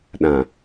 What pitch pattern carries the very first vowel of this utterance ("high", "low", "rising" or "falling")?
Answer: low